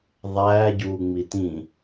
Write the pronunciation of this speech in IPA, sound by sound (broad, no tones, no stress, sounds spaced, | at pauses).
ðˤ æː ɟ uː ŋ͡m i t ĩ